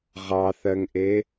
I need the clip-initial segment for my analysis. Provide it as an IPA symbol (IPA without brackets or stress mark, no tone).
ʁ